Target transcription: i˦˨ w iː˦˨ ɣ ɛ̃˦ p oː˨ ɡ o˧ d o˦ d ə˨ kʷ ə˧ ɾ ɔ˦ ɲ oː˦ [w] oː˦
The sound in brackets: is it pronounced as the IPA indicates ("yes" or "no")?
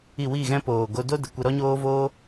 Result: no